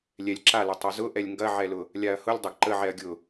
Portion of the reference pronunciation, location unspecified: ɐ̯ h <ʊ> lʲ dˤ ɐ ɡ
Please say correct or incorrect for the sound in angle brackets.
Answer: correct